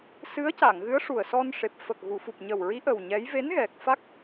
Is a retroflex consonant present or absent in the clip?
present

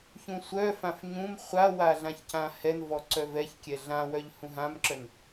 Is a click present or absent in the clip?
present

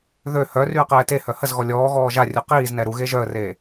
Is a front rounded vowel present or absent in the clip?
present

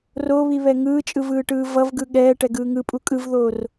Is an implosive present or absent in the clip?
present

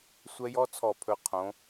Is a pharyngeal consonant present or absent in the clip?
absent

